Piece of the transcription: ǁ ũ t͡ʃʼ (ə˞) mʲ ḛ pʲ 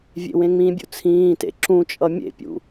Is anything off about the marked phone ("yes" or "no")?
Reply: yes